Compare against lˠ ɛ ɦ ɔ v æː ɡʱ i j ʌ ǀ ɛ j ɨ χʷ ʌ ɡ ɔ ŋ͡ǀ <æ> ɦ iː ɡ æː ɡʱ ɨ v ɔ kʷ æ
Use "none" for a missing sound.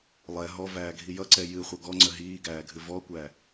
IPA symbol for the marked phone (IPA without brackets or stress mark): ə